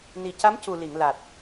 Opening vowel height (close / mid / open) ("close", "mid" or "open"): close